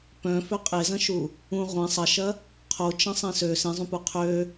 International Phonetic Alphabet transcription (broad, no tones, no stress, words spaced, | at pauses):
pœ̃ føqʼezɐ̃ʃu | ũ ʁʷẽ sˤɐʃɐ | qʰot͡ʃɐ̃ sˤẽsø sẽzˤũpu qʰø